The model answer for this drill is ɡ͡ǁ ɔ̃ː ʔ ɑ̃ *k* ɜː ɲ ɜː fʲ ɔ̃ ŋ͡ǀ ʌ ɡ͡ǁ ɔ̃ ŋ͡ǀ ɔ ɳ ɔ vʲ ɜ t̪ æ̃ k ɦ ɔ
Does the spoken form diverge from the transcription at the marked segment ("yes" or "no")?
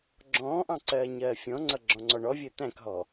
yes